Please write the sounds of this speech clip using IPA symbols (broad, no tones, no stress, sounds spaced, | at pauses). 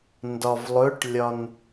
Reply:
n d ɒ v lˠ ɵ ʈ lʲ ɒ n